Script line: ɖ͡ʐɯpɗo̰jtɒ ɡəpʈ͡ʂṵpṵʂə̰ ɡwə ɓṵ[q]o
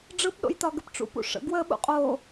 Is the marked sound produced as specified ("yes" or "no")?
no